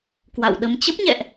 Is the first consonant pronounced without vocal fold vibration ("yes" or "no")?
yes